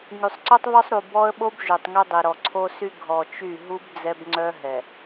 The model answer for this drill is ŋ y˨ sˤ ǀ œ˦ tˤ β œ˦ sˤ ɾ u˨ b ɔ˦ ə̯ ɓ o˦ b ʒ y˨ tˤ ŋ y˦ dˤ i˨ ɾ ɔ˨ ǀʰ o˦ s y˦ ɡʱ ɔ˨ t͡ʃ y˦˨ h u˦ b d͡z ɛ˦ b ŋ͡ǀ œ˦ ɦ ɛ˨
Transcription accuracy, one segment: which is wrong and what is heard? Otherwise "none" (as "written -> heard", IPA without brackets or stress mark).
h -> ɦ